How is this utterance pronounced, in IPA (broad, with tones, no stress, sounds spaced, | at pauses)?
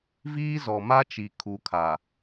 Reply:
v iː˦ z ɔ˨ m a˦ t͡ʃ i˨ kʰ u˨˦ kʰ a˨